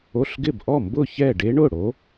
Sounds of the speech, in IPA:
o˧˥˧ɬɡɪ˥˩b ʔɔ˥˩mbʊ˥˩ çɛ˥˩ ɖe˦˥ɳʊ˥˩ ɽo˨˦

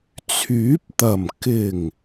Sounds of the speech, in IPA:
t͡sʰyː˨˥p̚t̪ɐ˨˩m kɪ˨˩ŋ

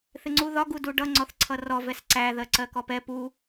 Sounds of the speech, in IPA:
θɪŋ͡ǀuðɒ ɡuduɖʌ ŋ͡ǀɔθǀʰʌrɔ vɛsǀæ ðɜǀɜkɔpɛ pu

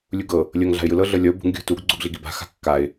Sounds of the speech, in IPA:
lʲuɡɤ | lʲɤŋ ɮa̤ɪ̯jɯlɤ ɮɤlʲɔʊ̯ bṳŋ ɡʲṳ tuɡ ɡ͡ǀuɡɮiɡiba̤ xa̤kːaɪ̯

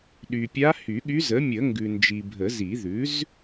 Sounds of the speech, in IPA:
ɗy˨pʲa˧˥ hy˨˩˦ɠy˧˥z ə˩˥mʲə˨˩˦ ŋɡʉ˨nd͡ʒi˨bʱə˨˩˦zi˨˩˦ ðʉ˩˥z

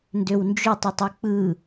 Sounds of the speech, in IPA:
ndøwnd͡ʒøtˤ ɯtˤɯk͡pɯ

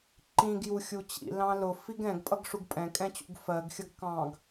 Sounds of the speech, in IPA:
ǃĩɡju xʲut͡ɕḭ lɑ̃lʊ fiɡɛ̃ɡpʼʌɡ ʂuɡpʼɛ̃kʼɛ̃t͡ɕṵɡ fɜɡxʲʌɡ kɑ̃ɡ

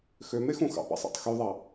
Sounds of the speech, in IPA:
xømexũ xɑ̰pɑ̰sˤɑ̰tˤ xyðˤɑ

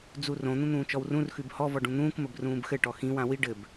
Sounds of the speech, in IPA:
d͡zurõ n̪ũn̪ũːt͡ʃɔwrũr xʉbhɔ vɔɖũn̪ũːk məbrũːbxɘ ʈɔxĩ wãwi ɖɘb

